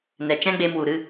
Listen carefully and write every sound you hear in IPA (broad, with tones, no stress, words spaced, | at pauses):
nɛ˨t͡ʃɛ̃˦ɡ͡be˧mwu˨ ɾɨ˧